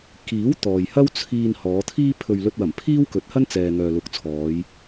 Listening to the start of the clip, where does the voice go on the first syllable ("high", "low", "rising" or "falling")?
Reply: rising